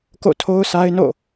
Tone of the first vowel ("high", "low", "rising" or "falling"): falling